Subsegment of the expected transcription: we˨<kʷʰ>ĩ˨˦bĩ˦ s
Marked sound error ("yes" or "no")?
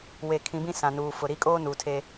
yes